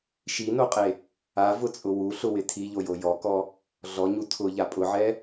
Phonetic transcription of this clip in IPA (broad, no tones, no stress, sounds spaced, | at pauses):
ʃ i n o qʼ e | a v ʊ t͡sʼ ʊ w u ɬ ʊ w ɪ tʰ i ʎ o j o j ɔ k ɔ | ɮ ɔ ɲ u tʰ ʊ ʎ a pʼ ʊ ʕ ɛ